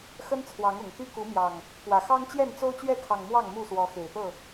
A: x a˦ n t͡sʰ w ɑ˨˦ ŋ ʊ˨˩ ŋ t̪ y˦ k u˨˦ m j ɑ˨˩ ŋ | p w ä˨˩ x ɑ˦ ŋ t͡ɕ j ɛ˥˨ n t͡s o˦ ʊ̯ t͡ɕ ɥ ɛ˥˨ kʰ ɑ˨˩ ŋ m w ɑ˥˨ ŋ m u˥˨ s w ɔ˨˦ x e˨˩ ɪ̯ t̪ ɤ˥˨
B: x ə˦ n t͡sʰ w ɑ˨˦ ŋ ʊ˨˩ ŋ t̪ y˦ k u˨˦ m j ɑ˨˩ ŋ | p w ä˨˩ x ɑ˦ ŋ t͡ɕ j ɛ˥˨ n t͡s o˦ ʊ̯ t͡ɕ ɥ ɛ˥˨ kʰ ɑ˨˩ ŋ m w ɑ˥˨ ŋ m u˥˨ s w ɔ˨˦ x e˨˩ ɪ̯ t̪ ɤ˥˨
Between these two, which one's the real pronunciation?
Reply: B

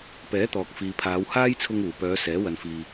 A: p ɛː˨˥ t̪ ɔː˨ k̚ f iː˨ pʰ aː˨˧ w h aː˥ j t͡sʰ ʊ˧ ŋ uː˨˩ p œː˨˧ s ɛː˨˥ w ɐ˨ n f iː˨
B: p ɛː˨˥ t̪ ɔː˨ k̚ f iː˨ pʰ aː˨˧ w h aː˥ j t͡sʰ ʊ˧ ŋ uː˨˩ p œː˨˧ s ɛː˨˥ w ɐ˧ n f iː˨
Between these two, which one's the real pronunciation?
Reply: A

